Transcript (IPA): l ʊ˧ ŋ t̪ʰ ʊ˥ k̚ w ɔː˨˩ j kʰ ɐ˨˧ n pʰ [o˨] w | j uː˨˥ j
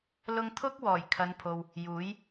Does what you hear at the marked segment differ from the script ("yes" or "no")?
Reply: no